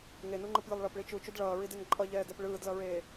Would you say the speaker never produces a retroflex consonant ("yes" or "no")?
no